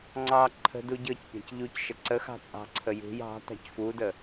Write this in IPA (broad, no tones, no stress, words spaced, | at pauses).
ŋ͡ǀɑ ǃʰə̤ duɟɤcpʲa̤c ʎuc ʃəǀəxɑ̤ t͡sʼɑ̤ǀʰə jṳj ɑ̤ tɑ̤cfudə